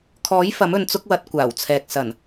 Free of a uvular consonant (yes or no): yes